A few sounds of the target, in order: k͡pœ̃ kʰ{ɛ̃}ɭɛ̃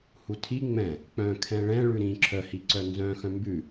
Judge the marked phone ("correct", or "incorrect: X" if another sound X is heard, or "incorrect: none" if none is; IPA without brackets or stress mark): correct